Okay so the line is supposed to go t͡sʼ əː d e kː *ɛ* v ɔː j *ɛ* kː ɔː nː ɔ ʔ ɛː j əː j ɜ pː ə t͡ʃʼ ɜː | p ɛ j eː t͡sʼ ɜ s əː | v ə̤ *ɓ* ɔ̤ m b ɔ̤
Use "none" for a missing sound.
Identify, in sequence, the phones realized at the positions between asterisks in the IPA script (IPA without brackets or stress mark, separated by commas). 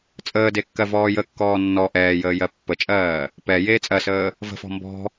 ɜ, ə, f